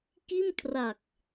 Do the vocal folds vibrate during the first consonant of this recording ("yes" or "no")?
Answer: no